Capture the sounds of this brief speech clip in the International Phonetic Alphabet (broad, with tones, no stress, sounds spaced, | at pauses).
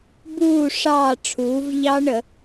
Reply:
b uː˥˨ ʂ ɑː˥˨ ʈ͡ʂʰ uː˩˥ v ʎ ɑ˦˥ ɳ ə˧˩˧